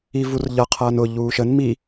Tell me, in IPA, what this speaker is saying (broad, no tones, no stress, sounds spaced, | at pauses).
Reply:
i v u r ʎ ʌ qʰ ʌː n ʊ ʎ uː ʃ ə n m i